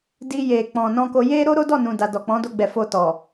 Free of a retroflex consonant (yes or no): yes